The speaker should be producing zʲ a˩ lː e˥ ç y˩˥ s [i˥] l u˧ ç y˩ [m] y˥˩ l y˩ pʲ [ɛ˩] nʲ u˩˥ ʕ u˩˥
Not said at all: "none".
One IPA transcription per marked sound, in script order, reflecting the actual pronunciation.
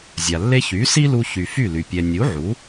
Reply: i˥, f, ɛ˩

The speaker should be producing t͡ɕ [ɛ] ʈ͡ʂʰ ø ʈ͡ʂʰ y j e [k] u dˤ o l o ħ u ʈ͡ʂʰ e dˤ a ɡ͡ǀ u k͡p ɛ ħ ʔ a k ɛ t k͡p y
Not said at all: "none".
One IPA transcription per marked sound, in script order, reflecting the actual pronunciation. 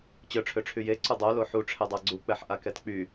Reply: œ, ǀ

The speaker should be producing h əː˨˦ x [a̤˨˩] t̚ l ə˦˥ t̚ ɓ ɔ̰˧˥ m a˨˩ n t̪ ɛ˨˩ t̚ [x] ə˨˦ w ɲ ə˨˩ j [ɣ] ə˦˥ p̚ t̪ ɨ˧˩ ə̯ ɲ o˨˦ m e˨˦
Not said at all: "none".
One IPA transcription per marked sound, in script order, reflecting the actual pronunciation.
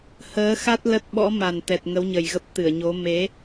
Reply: a˦˥, ŋ, ɣ

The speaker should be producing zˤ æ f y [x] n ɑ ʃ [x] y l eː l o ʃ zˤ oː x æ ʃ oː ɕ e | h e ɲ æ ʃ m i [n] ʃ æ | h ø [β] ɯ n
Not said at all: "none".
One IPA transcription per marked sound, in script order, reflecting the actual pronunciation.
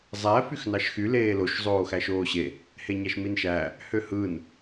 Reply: x, x, n, h

